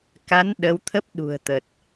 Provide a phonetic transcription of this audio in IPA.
ka˨˦n ɗə˨˦wt̪ʰə˦˥p̚ ɗṳ˨˩ə̯t̪ə˨˩t̚

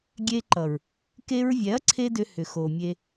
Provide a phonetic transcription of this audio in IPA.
ɡʲe˧ ǃʌ˨ɹ | ke˧ɹvʲɛ˨˦ɐ̯ ǀʰe˦dʏ˧hʏ˨ xo˨mʲe˧

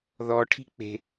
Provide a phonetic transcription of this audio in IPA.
ðɔʈʰi̤ k͡pe̤

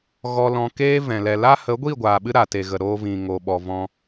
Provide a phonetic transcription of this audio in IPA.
ɣɔ˧lɔ̃˧keː˦vɛ̃˨ lɛ˨la˦ hə˨˦ɡʷi˦˨ɡʷaː˨ɓɨ˧ ɾa˨te˨ɣə˨ ɾoː˧vĩ˨ ŋo˨ɓɔ˨vɔ̃˧

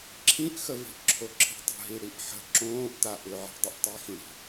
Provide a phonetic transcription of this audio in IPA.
ǁʰĩʔxəvi̤ʔ ǁʰoǁʰi̤tˤə̤ɦi ɽiʔħə̤ ǁõːʔta ʔʏʕi̤ dˤɪʔtˤixĩɽi̤

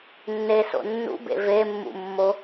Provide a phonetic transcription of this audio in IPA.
nːeso̰ nːṵbḛ vemːṵmːo

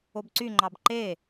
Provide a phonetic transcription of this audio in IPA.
obǀyŋ͡ǃɑb ǃe

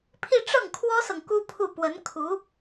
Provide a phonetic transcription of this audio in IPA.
pʰi˥˧ ʈ͡ʂɤ˥˩ŋkʰwɔ˥sɤ˨ŋ ku˥pʰu˥˩ pwə˧˥n kʰu˧˥

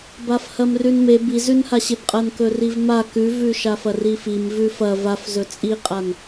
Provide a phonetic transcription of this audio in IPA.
bafhɐmrʉnmeb izʉnhaɕeb qʼɐnkɵrivma kʉvʉʃa fɐrifim vʉfɐ vafzɵ t͡sʼiqʼan

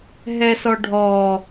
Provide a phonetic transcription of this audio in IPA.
ɦɛsɔɖʱɔː

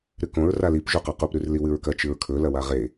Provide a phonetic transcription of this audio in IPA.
ɾɨkõɹ ralip ʒuqaqup ɾʉrliwɨɹkɐ t͡ʃɨɹkʰɵ lɐwaʁe

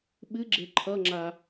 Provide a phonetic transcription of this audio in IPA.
ɓɨɡ͡ǁe ǃʰʌŋ͡ǁa

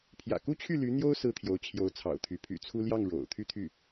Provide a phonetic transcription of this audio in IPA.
pʰjä̰˨˩ku˥˧t͡ɕʰy˥˩ ly˧˥ n̪jo˥ʊ̯ sɹ̩˥t̪ʰjo˧˥ʊ̯t͡ɕʰjo˧˥ʊ̯ t͡sʰɑ̰˨˩ʊ̯t̪ʰy˧˥ pʰy̰˨˩t͡sʰu˥ ljɑ˥˩ŋ ɻo̰˨˩ʊ̯ t̪ʰy˥˧t̪ʰy˥˩

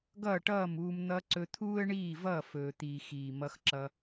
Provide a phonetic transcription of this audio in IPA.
ɡʌː˦˨ʈʌː˦˨muː˧m n̪ʌ˧ ǀɵ˧t̪ʰuː˦ə̯ɳiː˦˨vʌː˦˨ fɵː˨t̪iː˨ xiː˨mʌ˧xǁʌ˧

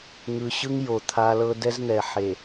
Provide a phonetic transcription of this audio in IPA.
ŋɯ˨ɕɯ˦ŋ jo˨t̪ʰa˦ lɤ˦ dɛ˦zn̪ɛ˨ ħe˨

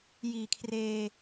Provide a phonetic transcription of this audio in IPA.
jiː˨˩kʰreː˧

